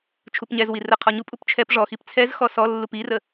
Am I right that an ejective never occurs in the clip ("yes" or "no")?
no